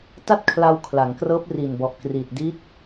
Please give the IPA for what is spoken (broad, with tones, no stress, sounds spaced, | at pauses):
t a˥˩ t̚ kʰ l a˧ w kʰ l a˩˦ ŋ k r ɤː˦˥ p̚ r i˨˩ n b ɔ˨˩ ʔ k r iː˨˩ t̚ d i˦˥ t̚